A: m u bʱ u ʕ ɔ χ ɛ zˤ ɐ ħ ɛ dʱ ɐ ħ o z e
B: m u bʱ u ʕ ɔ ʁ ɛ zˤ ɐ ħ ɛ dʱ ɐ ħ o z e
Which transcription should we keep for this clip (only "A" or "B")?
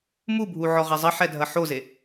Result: B